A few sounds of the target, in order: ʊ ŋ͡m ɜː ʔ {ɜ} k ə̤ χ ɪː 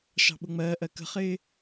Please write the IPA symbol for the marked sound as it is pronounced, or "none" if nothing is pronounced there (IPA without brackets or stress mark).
ɜ